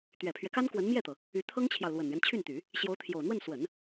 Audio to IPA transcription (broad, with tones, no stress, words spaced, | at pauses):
t̪ɥɛ˨˩pʰɥɛ˦ka˥n kwə˧˥nmjɛ˥˩t̪ɤ˩ | y˧˥t̪ʰɤ˥ŋt͡ɕʰjɑ˨ʊ̯ lwə˨˩nɥɛ˦nt͡ɕʰy˥˩nt̪y˨˩˦ | ɕjo˧˥ʊ̯t̪ʰjo˨˩ʊ̯n̪wə˥˩n swə˨˩˦n